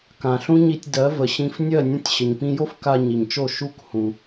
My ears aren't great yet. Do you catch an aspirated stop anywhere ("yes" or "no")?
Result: no